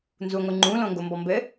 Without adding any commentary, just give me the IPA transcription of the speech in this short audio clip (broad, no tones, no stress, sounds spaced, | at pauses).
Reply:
n z u ŋʷ ɨ ŋ͡ǃ ũ l õ ŋ ɡ o m b ɔ m b ɘ